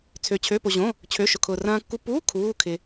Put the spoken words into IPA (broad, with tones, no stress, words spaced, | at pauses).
t͡sʰø˧t͡ɕʰø˧˥˧po˧ʑõ˧˥˧ | t͡ɕʰø˧˥˧ʃʊ˧kʰʊː˧ rɐ̃ː˧kːu˧puː˧˥˧ kʰuː˧˥˧kʰɪ˧